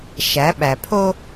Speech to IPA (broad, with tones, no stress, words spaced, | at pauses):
ʃæ˨˦ɓæ˨pʰo˦